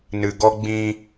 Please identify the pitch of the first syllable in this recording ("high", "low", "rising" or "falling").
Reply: low